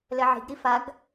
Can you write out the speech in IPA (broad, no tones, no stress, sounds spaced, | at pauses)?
l ɛ ʕ i̤ ɡ ɾ i f a ɡ